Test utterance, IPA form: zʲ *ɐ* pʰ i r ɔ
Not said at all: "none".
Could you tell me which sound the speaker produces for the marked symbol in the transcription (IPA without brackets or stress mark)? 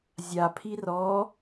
a